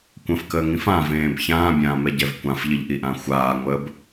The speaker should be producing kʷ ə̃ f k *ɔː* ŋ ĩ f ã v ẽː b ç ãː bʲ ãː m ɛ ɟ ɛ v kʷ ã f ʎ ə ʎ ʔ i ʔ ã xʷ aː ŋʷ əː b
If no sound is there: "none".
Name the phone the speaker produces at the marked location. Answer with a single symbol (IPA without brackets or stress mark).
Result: əː